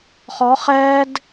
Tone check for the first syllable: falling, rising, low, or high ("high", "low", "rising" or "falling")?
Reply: rising